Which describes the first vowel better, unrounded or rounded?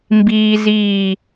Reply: unrounded